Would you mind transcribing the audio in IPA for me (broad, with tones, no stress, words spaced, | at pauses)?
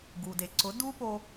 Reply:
ɡu˩de˩ ǀʊ˩˥ du˥po˧